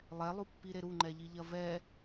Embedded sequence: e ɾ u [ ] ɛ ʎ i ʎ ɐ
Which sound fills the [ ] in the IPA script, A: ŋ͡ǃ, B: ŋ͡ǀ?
A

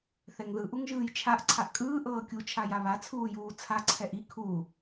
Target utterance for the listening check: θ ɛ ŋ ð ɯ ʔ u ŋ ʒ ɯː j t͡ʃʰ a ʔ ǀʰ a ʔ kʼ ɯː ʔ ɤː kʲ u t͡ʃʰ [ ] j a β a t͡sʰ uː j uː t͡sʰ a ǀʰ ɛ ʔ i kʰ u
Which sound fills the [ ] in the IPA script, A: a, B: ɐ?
A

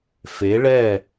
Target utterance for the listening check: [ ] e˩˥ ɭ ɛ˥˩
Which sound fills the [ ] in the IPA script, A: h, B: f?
B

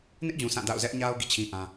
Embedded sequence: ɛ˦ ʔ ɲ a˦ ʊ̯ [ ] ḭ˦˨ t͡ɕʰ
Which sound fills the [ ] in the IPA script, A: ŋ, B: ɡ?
B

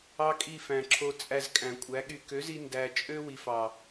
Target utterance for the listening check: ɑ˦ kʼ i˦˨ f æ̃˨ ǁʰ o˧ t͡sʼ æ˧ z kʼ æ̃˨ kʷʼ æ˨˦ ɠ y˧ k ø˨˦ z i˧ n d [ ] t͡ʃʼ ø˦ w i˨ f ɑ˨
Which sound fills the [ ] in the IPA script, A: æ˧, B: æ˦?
A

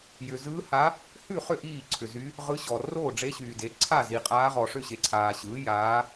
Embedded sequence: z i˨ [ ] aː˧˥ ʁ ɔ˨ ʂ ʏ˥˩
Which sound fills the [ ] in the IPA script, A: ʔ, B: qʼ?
B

